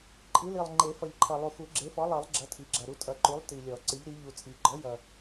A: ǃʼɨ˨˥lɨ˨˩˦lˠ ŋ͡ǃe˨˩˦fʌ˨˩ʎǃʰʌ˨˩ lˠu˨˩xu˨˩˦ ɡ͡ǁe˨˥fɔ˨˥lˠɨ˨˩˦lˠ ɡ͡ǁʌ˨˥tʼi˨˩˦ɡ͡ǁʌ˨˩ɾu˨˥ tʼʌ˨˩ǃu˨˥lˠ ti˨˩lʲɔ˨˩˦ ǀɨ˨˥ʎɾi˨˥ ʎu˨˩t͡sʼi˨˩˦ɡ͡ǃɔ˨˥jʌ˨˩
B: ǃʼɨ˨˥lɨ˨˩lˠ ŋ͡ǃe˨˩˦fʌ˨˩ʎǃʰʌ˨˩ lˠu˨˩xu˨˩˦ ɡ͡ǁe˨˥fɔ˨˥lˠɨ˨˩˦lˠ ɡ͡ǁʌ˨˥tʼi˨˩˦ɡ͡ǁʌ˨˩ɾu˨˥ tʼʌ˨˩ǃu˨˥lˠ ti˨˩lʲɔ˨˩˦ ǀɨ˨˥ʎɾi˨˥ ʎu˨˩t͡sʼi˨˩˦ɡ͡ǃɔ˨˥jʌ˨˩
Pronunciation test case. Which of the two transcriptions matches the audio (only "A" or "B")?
B